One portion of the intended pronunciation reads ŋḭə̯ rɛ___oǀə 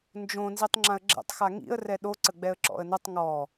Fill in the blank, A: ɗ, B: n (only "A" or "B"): A